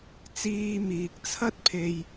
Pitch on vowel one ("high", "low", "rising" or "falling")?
low